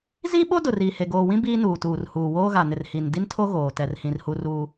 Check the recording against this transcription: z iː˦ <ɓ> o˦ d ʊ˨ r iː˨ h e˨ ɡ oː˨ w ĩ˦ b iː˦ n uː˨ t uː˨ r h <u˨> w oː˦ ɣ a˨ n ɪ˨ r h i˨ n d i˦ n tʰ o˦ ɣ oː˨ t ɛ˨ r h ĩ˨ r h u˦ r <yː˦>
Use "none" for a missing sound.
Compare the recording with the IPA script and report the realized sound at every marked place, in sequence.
ɓ, uː˨, uː˦

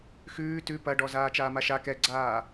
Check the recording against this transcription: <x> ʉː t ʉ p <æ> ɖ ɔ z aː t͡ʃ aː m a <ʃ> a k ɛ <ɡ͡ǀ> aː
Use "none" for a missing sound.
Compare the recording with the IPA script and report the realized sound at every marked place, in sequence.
x, ɐ, ʃ, ɡ͡ǀ

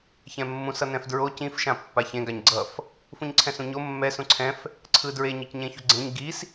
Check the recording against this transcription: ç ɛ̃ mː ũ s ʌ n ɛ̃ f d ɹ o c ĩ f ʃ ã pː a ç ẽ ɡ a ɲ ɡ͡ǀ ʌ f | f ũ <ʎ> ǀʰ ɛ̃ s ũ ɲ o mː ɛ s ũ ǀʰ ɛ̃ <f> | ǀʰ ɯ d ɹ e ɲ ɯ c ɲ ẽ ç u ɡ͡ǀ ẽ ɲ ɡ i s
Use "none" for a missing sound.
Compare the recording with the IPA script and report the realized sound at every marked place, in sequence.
ɲ, f

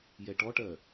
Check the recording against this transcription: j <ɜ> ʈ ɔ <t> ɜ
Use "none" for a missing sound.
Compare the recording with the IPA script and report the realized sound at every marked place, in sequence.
ɛ, ʈ

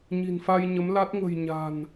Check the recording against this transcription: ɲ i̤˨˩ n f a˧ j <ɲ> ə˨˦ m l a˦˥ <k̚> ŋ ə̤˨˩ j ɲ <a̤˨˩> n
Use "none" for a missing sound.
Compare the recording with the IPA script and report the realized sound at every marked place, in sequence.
ɲ, t̚, a̤˨˩

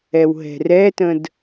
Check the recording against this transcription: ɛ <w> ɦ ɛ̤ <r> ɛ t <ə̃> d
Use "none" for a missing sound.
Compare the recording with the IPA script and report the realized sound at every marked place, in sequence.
w, r, ə̃

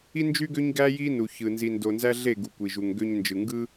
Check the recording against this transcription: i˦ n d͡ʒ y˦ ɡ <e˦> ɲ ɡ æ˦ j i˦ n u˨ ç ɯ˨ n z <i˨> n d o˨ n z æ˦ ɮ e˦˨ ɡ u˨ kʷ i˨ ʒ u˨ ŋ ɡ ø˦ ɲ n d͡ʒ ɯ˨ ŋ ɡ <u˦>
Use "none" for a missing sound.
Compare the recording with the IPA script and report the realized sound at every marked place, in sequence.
ø˦, i˨, ɯ˦

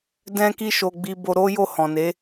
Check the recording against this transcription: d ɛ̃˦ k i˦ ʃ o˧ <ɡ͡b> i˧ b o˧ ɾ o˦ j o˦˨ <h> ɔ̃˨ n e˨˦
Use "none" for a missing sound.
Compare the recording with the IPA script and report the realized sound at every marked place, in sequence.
ɡ͡b, h

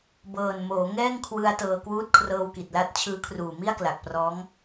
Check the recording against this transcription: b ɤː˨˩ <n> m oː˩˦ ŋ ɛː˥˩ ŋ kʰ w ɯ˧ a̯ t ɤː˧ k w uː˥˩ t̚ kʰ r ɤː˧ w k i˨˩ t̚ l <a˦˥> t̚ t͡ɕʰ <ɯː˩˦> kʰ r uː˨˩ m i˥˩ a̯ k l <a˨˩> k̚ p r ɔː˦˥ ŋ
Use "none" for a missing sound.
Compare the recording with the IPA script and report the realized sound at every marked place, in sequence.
n, a˦˥, ɯː˦˥, a˨˩

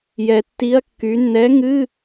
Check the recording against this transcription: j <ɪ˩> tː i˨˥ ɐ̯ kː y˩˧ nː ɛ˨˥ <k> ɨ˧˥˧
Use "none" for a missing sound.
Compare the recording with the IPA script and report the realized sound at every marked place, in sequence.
ɛ˩, ŋ

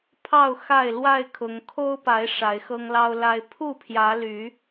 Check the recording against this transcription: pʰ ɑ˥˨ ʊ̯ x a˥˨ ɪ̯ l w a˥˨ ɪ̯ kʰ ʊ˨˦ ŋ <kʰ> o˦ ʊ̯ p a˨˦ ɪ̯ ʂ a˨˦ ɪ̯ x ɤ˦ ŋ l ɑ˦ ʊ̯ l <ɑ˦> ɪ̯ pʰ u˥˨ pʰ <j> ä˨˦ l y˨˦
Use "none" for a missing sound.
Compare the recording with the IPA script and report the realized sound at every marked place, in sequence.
kʰ, a˦, j

